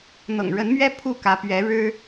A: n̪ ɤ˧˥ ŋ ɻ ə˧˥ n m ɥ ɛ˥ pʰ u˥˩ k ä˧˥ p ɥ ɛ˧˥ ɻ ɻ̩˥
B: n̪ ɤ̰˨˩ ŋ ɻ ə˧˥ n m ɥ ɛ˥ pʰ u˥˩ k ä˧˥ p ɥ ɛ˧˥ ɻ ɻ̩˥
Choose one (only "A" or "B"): B